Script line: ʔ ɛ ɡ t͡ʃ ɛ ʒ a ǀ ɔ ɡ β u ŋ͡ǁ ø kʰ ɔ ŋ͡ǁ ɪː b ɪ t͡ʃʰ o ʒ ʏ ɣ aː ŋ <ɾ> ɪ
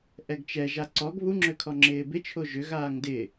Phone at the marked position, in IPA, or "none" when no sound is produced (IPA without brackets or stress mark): d